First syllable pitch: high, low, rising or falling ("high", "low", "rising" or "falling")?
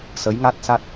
rising